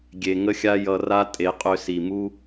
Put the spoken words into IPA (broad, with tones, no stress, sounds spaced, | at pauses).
ɡʲ e˨ ŋ ə˦ xʲ a˦ j ʌ˧ r a˦ tʼ e˨˦ qʼ ø˧ s i˨ m u˦